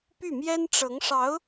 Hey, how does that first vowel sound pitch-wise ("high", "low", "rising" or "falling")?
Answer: falling